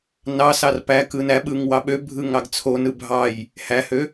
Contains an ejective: no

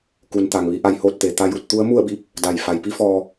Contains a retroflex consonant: no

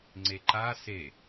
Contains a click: yes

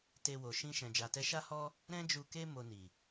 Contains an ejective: no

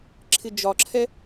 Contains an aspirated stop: yes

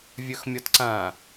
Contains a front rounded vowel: yes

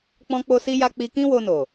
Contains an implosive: no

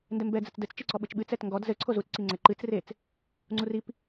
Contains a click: yes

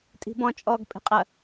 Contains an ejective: yes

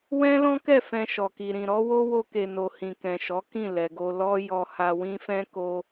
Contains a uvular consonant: no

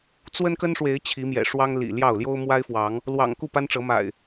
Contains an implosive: no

